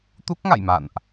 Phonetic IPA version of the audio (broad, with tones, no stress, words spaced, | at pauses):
t̪u˦˥k̚ŋa̰˧˨jma̰˧˨nʔ